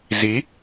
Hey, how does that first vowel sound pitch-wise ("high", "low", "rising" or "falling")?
rising